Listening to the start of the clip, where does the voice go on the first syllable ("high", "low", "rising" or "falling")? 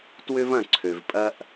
high